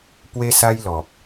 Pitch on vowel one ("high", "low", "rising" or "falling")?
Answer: high